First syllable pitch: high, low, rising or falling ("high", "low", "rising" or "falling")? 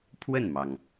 falling